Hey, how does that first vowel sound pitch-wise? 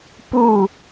falling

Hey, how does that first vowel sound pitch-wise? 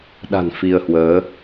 low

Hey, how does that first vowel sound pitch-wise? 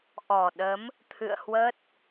low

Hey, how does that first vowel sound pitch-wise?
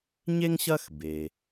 high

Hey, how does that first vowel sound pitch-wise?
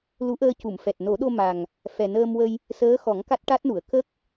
rising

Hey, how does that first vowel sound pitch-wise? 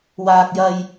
high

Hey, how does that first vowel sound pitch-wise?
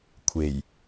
low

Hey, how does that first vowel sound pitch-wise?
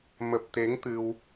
low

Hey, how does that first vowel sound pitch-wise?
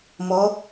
rising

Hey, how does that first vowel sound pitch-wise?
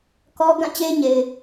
high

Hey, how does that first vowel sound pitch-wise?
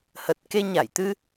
low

